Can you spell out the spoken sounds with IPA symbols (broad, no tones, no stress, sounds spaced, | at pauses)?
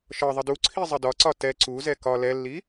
ʃ ɒ ðˤ ə d u ǀʰ i zˤ ə d ɒ ǀ ɒ t ɛ ǀ u z ɛ k ɒ l ɛ lː i